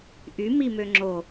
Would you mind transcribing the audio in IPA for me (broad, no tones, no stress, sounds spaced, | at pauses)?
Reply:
ʔ y m i m ø ŋ͡ǁ o